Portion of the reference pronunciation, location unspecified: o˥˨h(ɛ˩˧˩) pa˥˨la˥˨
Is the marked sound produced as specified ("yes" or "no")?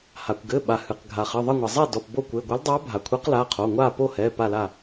yes